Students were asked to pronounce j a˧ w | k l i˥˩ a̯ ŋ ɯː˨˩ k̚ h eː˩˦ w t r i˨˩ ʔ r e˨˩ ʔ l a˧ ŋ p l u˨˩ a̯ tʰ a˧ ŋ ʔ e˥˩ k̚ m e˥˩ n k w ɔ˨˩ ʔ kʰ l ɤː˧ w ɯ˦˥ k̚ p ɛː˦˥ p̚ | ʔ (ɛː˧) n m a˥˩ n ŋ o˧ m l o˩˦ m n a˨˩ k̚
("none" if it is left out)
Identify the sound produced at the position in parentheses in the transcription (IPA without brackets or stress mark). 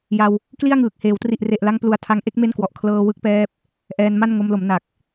ɛː˧